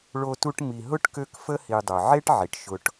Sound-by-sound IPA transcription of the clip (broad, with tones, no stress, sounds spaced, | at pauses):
ɭ o˦ t u˦ ʈ m i˨ ɦ ʊ˥ ʈ k ø˦ k f ə˥ h i˨ dˤ œ˩ ʕ e˥ ʈ ʕ i˩ ʈ ʃ ʊ˨ ʈ